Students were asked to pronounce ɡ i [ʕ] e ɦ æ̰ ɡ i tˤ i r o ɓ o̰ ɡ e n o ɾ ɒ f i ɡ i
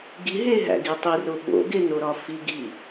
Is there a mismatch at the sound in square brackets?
yes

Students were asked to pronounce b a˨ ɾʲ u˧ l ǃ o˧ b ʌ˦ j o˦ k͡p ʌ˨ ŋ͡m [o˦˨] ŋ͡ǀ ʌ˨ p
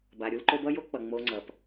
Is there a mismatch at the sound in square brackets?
yes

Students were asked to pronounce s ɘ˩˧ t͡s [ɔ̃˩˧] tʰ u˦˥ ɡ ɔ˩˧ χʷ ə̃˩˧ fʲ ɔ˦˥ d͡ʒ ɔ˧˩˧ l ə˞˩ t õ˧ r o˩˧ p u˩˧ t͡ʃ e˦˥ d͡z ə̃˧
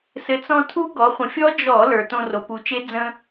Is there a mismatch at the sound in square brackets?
yes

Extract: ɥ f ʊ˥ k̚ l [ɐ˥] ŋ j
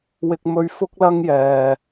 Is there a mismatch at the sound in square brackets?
no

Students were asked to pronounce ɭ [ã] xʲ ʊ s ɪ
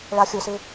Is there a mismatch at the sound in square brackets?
yes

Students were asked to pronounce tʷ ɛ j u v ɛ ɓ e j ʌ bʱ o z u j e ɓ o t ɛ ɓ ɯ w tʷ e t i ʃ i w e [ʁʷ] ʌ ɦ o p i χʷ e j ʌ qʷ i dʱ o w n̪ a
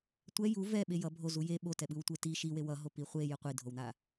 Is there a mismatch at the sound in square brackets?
yes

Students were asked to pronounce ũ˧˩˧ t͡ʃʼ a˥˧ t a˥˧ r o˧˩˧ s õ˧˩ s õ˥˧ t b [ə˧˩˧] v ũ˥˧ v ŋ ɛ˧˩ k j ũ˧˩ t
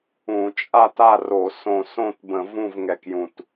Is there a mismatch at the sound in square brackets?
yes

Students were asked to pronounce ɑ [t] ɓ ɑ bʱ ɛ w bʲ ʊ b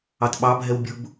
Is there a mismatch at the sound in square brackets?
no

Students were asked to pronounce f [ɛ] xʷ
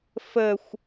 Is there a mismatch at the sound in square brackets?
yes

